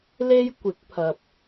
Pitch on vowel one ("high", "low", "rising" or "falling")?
high